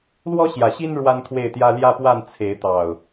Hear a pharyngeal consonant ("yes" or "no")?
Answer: no